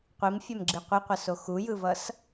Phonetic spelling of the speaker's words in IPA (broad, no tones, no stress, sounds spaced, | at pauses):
qʷ i m fʲ ɛ m ɡ͡ǁ i qʷ i qʷ ʌ s o x u j ɯ v ʌ s